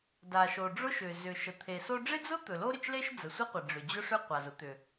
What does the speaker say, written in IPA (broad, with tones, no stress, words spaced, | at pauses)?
da˩ʃo˩ ɖ͡ʐʊ˥ʃʏ˩ zʏ˩ʃə˩ t̪ʰe˩so˥ ɖ͡ʐɪ˥d͡zʊ˥ t̪ɵ˩lo˥ɾʏ˩t͡ʃle˥ʃ d͡zə˩sʷɪ˥qʷɪ˩ ɖ͡ʐʏ˩d͡ʑʊ˥ʂʏ˥ qʷa˩zʊ˥ t̪ʏ˩